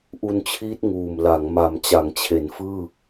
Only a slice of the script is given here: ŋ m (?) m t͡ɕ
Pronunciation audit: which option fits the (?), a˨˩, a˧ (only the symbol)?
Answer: a˨˩